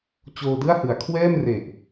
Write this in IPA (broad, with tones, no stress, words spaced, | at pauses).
t͡ɕoː˧dɯ˥˩a̯hɯ˩˦a̯ kʰwɛː˥˩mre˨˩ʔ